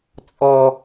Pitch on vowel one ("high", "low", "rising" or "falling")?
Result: high